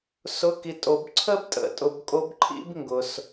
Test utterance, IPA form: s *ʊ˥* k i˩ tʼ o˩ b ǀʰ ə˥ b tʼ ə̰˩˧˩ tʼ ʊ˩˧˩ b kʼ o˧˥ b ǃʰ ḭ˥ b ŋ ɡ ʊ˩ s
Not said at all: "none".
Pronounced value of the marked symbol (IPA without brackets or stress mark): ʊ˩˧˩